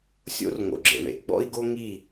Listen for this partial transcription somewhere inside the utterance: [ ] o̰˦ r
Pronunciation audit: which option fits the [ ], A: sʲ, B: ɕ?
A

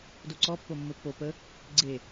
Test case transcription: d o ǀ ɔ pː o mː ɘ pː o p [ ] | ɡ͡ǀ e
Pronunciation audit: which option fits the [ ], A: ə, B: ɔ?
A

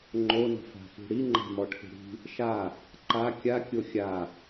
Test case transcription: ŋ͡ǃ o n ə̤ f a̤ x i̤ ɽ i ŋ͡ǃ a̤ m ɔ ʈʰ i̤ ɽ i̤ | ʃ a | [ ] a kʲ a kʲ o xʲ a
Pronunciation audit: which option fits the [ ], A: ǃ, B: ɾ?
A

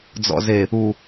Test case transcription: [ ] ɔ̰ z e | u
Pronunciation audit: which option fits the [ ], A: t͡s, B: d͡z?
B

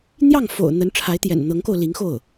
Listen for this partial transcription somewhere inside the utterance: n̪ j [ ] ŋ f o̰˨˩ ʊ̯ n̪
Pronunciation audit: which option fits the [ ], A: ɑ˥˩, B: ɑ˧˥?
A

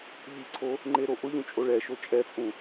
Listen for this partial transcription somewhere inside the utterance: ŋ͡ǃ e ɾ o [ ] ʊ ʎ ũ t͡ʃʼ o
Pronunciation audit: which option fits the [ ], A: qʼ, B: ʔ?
B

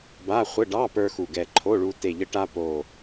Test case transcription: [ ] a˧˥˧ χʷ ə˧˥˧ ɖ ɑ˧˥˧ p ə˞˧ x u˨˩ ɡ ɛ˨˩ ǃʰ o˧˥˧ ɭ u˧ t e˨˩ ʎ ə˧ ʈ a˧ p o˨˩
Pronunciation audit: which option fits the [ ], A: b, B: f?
A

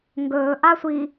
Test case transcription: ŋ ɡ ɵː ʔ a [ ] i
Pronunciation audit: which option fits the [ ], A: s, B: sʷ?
B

